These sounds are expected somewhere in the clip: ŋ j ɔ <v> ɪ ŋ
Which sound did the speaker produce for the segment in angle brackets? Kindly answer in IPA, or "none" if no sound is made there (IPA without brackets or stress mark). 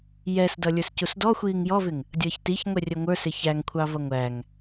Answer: v